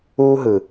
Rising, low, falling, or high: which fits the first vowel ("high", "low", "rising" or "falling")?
high